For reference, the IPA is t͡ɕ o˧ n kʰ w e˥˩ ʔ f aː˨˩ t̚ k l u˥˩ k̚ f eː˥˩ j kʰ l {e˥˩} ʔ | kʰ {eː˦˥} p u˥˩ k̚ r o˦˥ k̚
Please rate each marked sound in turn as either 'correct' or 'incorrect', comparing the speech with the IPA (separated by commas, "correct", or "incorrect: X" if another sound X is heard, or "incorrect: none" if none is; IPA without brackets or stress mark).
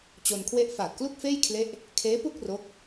correct, correct